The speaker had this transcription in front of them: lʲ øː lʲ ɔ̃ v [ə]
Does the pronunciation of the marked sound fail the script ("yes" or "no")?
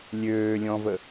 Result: no